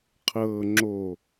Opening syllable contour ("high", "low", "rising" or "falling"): low